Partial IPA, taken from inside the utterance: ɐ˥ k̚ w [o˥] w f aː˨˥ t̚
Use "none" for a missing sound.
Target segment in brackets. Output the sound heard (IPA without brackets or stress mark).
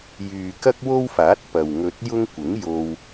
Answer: o˥